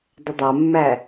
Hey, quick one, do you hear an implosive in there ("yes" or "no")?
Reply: no